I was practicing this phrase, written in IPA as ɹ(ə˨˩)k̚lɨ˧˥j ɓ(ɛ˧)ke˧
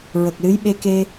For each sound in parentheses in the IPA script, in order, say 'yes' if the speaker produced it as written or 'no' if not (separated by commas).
yes, no